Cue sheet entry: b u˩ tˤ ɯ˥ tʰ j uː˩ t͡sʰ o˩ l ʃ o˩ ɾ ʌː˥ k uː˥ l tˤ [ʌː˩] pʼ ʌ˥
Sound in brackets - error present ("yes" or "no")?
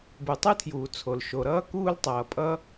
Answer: no